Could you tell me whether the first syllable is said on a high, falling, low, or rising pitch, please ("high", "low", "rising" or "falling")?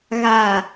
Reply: low